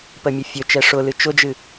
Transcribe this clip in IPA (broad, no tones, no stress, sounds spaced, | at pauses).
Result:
p ə mʲ ə fʲ ɵ t͡ʃ ɛ ʂ ʊ l ɨ t͡ʃ ʊ d͡ʒ ɨ